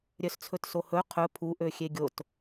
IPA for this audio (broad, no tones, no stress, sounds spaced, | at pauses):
ɾʲ œ s t͡sʰ ɵ t s o h ɵ qʰ ɵ pʰ u ʔ ø xʲ e ɡʲ o t